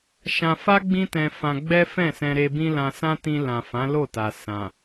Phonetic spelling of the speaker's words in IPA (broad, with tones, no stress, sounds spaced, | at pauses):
ʃ ã˧ f a˦ ɡ͡b ĩ˦ t ɛ̃˧ f ã˧ ɡ͡b ɛ˦ f ɛ̃˦˨ s ɛ̃˧ ɾ e˧ b ĩ˦ l ã˧ s ã˦ t ĩ˧ l ã˨ f ã˨˦ l o˦˨ t a˨ s ã˨